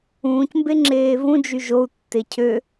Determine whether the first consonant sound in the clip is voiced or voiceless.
voiceless